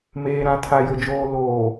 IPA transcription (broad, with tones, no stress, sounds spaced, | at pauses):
m eː˨ ɾ ã˨ tʰ a˨ j ʊ˨ d͡ʒ oː˨ l oː˨